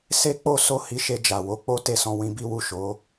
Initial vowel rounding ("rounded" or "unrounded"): unrounded